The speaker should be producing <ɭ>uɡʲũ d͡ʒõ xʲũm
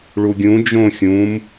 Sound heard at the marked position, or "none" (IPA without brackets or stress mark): ɭ